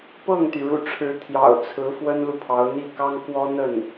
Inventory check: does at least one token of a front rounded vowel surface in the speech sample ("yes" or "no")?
yes